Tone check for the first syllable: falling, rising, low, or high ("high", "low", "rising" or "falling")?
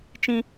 high